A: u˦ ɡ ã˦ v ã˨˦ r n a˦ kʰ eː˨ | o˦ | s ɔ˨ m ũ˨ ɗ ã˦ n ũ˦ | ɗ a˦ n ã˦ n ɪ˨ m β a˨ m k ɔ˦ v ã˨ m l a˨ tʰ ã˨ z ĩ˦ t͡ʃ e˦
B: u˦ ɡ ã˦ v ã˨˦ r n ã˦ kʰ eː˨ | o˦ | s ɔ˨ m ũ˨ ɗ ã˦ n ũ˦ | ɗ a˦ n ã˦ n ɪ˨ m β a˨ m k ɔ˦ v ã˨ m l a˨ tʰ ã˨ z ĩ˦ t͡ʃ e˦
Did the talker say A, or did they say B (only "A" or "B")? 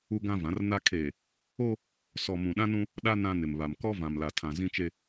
A